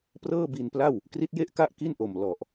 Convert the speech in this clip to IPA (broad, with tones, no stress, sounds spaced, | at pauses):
p r ɤː˥˩ b i˧ n p l a˥˩ w | k r i˦˥ t̚ j e˥˩ ʔ k a˥˩ ʔ k i˥˩ n ʔ o˨˩ m l ɔ˨˩ ʔ